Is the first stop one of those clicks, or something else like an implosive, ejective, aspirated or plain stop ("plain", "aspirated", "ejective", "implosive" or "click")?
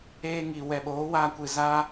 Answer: implosive